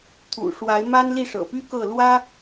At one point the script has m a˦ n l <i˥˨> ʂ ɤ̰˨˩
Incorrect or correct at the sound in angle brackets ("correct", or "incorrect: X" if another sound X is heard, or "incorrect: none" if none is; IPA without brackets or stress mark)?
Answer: correct